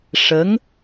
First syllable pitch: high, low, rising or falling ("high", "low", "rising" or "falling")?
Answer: rising